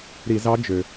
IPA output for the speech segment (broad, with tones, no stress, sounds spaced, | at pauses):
ɾ i˧˩˧ z ɑ˧˥ d͡ʒ ø˩